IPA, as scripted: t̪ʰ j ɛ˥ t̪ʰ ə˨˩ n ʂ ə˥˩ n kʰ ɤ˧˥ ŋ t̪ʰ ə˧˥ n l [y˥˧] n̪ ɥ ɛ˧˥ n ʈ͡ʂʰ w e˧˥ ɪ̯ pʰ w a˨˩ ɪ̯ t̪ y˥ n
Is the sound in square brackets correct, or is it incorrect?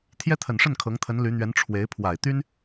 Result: incorrect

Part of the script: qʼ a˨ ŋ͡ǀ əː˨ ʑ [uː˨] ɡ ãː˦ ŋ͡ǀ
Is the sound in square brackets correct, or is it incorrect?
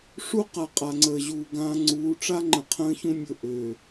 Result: correct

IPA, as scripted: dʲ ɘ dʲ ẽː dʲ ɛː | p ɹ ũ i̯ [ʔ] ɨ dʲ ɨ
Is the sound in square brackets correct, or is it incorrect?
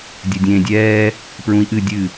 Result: correct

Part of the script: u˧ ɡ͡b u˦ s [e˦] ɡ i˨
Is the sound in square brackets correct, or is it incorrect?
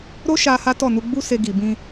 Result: incorrect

